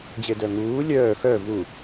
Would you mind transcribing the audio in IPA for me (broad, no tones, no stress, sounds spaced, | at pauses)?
d͡ʑ e d œ ŋ uː lʲ œː x œ v u